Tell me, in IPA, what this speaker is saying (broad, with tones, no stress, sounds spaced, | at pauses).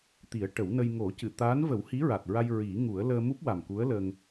t̪ i˨˩˦ ə̯ ʈ ə˨˩˦ w n ə˧ j ŋ o˨˩˦ c ɨ˨˩˨ t̪ aː˧˥ n v ə˨˩˦ w h i˧˥ ɹ a˨˩ t̚ ɹ a˧ j ɹ i˨˩˦ ŋ u˨˩˦ ə̯ l əː˧ m u˦˥ p̚ w a˨˩ m k u˧˥ ə̯ l ə˧ ŋ